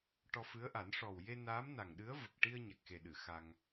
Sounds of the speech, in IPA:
ʈ ɔ˧ f ɨ˧˥ ə̯ ʔ a˨˩˦ n ʂ ɔ˨˩ w j e˧ n aː˧˥ m n a˨˩ ŋ ɗ ɨ˧˥ ə̯ v ə˨˩ k̚ ʈ i˧ ə̯ ɲ a˨˩ k̚ x e˨˩ ɗ ɨ˨˩˨ x a˧ ŋ

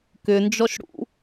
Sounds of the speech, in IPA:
k ʏ n d͡ʒ ɔ ʃ ɽ ṵ

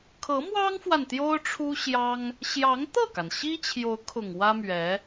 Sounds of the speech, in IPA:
kʰ ɤ˧˥ m w ɑ˥ ŋ f w a˨ n t̪ j o˥ ʊ̯ ʈ͡ʂʰ u˥ ɕ j ɑ˥ ŋ | ɕ j ɑ˧˥ ŋ t̪ ɤ˥˩ k a˩ n ɕ i˥ t͡ɕʰ j o˧˥ ʊ̯ kʰ ʊ˨˩ ŋ w ä˥ m ɥ ɛ˧˥

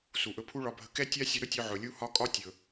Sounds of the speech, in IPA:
s u˨ ʔ ɵ˧ pʰ u˦ ɭ ɒ˧ bʱ ə˧ k ɛ˦ tʲ a˦ sʲ ə˧ ɾ ɵ˦ tʲ ɵ˧ ʕ ɵ˨ lʲ u˦ h ɒ˦ kʼ ɒ˦ tʲ ɵ˨

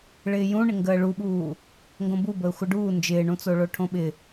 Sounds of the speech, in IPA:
ɭ ɪː j ũ ɳ ɪ ŋ ɡ əː ɭ u ɓ uː | ŋ ɡ õ b u b əː xʷ ə ɖ uː n d͡ʒ ɪː ɳ ũ t͡s o ɭ o ʈʰ õ ɓ ɪ

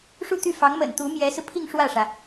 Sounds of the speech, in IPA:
ʂ u˥˧ t̪ y˥˩ f ɑ˧˥ ŋ m ə̰˨˩ n t̪ u˧˥ m j ɛ˧˥ s ɹ̩˧ pʰ i˥˧ ŋ ʂ w ä˥˩ ʂ ä˩

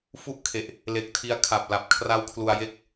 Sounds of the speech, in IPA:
f u˦˥ ʔ kʰ e˨˩ ʔ | l e˨˩ k̚ tʰ i˧ a̯ kʰ a˨˩ p̚ l a˨˩ p̚ kʰ r a˦˥ w kʰ l u˧ a̯ j e˥˩ k̚

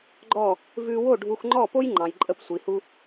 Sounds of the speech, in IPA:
ɡ͡ǃ ɔ˥˩ | v ʉ˧ w o˥˩ ɖʱ u˧ x ŋ͡ǃ ɔ˥˩ p o˥ j ŋ͡ǃ ɑ̃˩ j ǃʼ ə˧ p sʷ i˩ h u˧

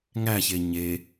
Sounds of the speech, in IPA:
ŋ æ ç e ɲ e

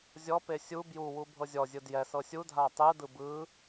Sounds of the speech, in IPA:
zʲ ɔ p e sʲ u b j u w u bʱ ɤ zʲ ɔ zʲ ɯ d j ɛ s ɤ sʲ u dʱ a tˤ ɯ d ɯ b ɯ

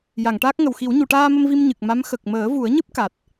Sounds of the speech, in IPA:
j a˨˩˨ ŋ ʈ aː˦˥ k̚ ŋ ə˨˩ w x i˨˩˦ w ɲ u˨˩˨ ʈ aː˧ m ə˧ m v i˧ m ɲ ɨ˨˩ k̚ m a˧˥ m x ə˨˩ k̚ m əː˨˩˦ v u˨˩˦ ə̯ ɲ ɨ˦˥ p̚ k a˨˩ t̚

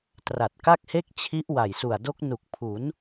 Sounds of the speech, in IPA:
t r a˨˩ t̚ k a˥˩ k̚ h e˥˩ k̚ t͡ɕʰ i˦˥ ʔ w a˨˩ j s u˨˩ a̯ d o˦˥ k̚ n u˨˩ k̚ pʰ u˩˦ n

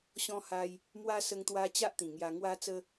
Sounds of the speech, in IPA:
ɕ ɔ̃˧ h a˧ j | m w a˧ s ə˧ ŋ t̪ w a˧ t͡ɕ a˦ ʔ t̪ ĩ˨˩ ŋ j a˧ ŋ w a˧ t͡s ə˧

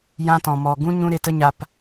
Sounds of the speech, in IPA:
j ã˧ t ɔ̃˨ m ɔ˨ ɡ ũ˦ ɲ ũ˦ ɾ e˧ t ə˦ ɲ a˧ p

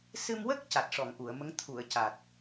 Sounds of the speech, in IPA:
s ɨ˧ m w ə˦˥ k̚ c a˨˩ t̚ ʂ ɔ˨˩˨ ŋ ʔ u˨˩˨ ə̯ m ə˧˥ ŋ t̪ʰ u˨˩˨ ə̯ c a˨˩ t̚

